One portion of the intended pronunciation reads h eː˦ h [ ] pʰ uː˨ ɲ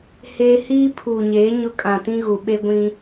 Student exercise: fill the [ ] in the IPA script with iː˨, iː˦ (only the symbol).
iː˦